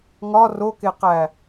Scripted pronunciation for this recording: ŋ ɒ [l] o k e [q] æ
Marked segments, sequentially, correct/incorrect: incorrect: r, correct

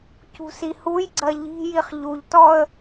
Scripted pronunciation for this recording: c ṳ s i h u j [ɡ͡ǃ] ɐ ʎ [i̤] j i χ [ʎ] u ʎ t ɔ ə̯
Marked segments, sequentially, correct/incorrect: incorrect: ɡ͡ǀ, correct, correct

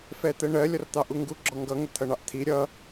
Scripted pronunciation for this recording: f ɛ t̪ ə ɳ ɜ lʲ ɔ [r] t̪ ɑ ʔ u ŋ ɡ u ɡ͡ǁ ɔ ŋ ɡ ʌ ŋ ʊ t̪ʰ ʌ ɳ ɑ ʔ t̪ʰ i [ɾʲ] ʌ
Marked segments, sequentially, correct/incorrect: correct, correct

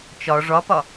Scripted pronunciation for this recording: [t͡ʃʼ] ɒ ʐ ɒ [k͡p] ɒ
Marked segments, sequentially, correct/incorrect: incorrect: t͡ʃ, incorrect: p

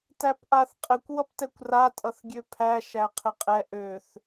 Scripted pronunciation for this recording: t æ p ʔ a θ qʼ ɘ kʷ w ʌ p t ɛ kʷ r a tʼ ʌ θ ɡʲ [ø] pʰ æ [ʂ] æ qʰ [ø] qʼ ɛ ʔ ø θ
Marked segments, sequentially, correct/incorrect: correct, incorrect: ʃ, incorrect: ɘ

